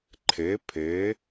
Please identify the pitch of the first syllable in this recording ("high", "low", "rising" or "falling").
rising